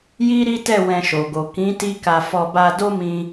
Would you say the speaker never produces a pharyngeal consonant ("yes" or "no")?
yes